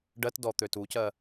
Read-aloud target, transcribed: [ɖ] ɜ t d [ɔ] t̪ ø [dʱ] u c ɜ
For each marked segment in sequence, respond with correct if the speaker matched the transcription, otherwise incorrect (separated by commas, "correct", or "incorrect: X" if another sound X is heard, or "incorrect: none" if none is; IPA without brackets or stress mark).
correct, correct, incorrect: t